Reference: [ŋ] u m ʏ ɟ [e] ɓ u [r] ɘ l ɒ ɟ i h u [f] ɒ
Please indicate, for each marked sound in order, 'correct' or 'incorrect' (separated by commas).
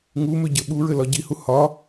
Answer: correct, incorrect, incorrect, incorrect